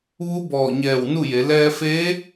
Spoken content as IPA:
ʋ u˧˥ b ɔː˧˩ ɲ ɛː˧˩ w n u˥˨ j e˩˧ l ɛː˧ f eː˧˥

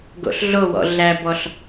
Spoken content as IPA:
ɡ o̰ ɬ ɮ o w ɔ̰ ɮ æ b ɔ ɬ

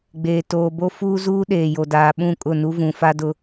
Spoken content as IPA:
ɡ͡b eː˨ t oː˨ b o˦ f uː˦ z uː˦ ɗ eː˨ j o˨ d aː˨ ɓ ũ˦˨ kʼ ʊ˦˨ n u˦ v ũ˨ f a˦ d ʊ˦

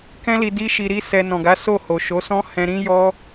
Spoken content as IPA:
k ɛ̃˦ l i˧ d i˦ ʃ i˧ ɾ i˦ s ɛ˧ n ɔ̃˨ ɡ a˨˦ s o˦˨ h o˨ ʃ o˨˦ s ɔ̃˦ h ɛ̃˧ ɾ ĩ˦ j ɔ˦

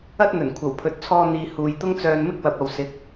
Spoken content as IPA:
ɐ˥ t̚ n̪ ɵ˨˩ n kʷʰ ɐ˨˩ w pʰ ɵ˨˥ t̚ t͡sʰ ɔː˧ n̪ iː˨ h uː˨ j t̪ ʊ˥ ŋ t͡s œː˧ n m ɪ˥ k̚ w ɐ˨ p̚ ɐ˨ w s ɪ˨˥ k̚

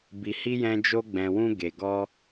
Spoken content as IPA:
b i˨ h i˧ j ɛ̃˧ d͡ʒ o˧ ɡ͡b ɛ̃˨ w ũ˧ ɡ e˨ ɡ ɔ˧

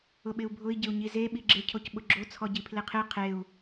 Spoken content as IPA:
ʊ ɓ ɪ u̯ bʱ ʊ i̯ ɟ ɪ u̯ ɲ i z e ɓ i ɡ͡ǁ ɪ cʰ o c ɓ ʊ ɡ͡ǁ o t͡sʰ ɔ ɟ i pʰ l e qʰ e qʰ e u̯

